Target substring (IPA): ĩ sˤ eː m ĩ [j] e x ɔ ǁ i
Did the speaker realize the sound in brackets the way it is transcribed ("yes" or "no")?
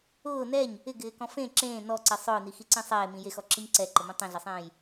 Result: yes